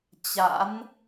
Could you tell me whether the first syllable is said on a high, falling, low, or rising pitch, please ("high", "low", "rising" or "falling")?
rising